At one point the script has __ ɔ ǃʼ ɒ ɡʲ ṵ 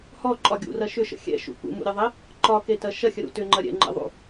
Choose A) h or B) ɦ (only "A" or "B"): A